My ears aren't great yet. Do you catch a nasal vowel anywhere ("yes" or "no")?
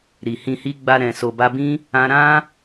yes